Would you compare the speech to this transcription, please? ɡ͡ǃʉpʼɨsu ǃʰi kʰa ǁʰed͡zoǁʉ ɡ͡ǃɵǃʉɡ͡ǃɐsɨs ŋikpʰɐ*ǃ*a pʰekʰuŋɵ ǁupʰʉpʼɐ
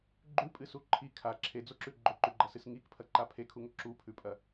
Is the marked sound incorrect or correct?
correct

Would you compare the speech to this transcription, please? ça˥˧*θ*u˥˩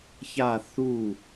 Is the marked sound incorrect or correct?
correct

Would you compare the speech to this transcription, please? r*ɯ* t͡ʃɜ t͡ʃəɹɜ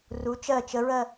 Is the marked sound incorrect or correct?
incorrect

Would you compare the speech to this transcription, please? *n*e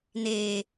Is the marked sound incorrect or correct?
correct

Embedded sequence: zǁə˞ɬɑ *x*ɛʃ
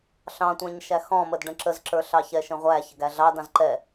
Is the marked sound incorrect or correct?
incorrect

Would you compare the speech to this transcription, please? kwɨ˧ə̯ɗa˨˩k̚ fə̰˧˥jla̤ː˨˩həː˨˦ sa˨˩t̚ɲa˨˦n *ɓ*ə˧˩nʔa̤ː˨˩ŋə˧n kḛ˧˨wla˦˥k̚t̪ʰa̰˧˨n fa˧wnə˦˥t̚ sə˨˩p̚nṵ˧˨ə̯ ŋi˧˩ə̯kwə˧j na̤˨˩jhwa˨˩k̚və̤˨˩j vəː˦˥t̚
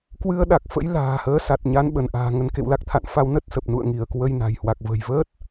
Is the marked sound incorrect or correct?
correct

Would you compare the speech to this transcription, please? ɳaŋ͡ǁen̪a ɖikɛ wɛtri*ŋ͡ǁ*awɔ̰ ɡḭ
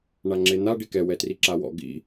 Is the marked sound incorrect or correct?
incorrect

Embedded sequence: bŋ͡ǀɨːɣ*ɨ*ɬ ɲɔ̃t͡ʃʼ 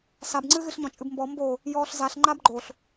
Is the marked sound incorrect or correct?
correct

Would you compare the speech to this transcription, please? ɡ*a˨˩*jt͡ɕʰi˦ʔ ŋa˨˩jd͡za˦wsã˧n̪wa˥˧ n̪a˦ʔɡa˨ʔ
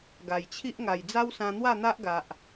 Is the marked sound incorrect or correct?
correct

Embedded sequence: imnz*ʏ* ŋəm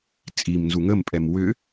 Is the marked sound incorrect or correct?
incorrect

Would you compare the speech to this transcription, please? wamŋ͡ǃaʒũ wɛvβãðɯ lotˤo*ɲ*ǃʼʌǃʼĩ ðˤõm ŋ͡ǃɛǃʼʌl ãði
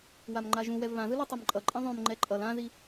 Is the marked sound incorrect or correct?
incorrect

